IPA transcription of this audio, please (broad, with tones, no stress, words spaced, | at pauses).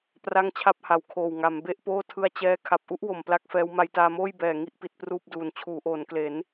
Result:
pra˥˩ŋt͡ɕʰa˥˩p̚ha˩˦wkʰoː˨˩w ŋa˩˦m be˥˩ʔpoː˥˩tʰɯ˦˥a̯ t͡ɕɛː˥˩ kʰa˨˩p̚ʔu˦˥ʔwo˨˩m pla˥˩k̚fɛː˦˥w ma˧jtaː˧moː˥˩j bɛː˨˩ ŋi˥˩ʔpi˨˩t̚ pruː˥˩p̚duː˨˩n t͡ɕʰuː˩˦ʔoː˩˦nkle˩˦n